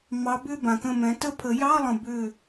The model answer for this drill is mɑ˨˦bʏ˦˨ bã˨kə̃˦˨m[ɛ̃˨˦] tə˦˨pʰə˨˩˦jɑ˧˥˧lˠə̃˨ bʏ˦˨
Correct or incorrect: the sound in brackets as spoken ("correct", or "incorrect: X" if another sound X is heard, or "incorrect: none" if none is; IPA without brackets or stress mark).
correct